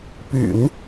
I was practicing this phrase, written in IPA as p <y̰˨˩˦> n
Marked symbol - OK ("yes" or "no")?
yes